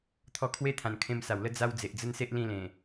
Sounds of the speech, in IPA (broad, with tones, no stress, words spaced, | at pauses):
t̪ʰɔ˧kʰwe˦t̪ʰã˨˩n kʰẽ˧msa˨˩wlə˦ d͡za˦w d͡ze˨ʔd͡zə˦nse˦ʔ lĩ˦lẽ˨˩